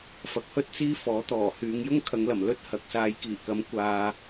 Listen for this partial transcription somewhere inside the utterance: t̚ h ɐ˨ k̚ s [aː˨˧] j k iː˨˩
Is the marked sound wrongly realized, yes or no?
no